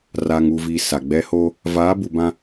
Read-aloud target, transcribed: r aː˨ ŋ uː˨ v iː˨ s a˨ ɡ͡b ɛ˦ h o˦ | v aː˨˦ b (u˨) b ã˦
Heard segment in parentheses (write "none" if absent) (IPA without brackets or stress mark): u˨